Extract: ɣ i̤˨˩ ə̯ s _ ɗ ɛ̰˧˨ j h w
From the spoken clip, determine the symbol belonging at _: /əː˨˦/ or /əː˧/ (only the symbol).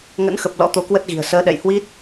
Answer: əː˨˦